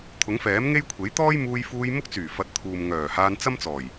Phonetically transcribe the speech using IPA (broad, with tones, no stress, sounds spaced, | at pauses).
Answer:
t̪ʰ ʊ˨˥ ŋ f ɛː˨˥ m ŋ e˥ j kʷʰ e˨˥ j t̪ ɔː˥ j m uː˧ j f uː˧ j m ʊ˥ k̚ t͡s yː˨˩ f ɐ˨˥ t̚ t̪ʰ uː˨ m ŋ œː˨˩ h aː˧ n t͡s ɐ˥ m t͡s ɔː˨˩ j